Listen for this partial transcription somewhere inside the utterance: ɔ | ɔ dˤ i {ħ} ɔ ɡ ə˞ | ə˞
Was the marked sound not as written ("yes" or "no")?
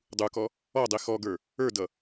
yes